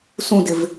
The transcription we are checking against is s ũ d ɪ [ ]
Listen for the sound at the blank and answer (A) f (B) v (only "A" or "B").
B